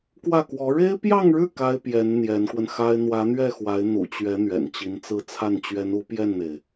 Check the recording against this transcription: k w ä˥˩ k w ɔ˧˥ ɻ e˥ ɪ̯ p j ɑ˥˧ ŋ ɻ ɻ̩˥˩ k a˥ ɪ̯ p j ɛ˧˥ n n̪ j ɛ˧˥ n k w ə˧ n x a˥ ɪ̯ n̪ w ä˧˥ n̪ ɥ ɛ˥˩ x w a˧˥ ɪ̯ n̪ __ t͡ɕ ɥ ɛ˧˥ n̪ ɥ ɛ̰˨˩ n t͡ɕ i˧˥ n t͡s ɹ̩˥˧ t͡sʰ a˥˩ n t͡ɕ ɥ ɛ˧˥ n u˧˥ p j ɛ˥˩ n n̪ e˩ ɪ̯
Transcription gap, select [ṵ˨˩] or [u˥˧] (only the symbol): ṵ˨˩